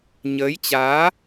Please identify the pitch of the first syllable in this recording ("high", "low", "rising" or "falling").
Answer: rising